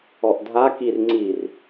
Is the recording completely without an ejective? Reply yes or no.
yes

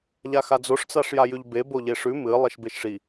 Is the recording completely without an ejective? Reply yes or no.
yes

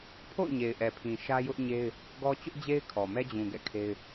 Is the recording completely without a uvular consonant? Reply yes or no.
yes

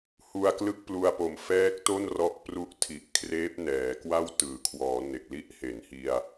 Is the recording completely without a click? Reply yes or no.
yes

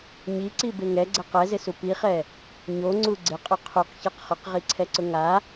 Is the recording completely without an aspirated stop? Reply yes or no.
no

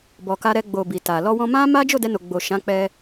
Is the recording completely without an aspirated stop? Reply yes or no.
yes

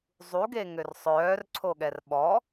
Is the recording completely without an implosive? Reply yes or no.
no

